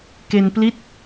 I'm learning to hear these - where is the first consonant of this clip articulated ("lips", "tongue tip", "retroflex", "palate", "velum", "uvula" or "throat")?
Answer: velum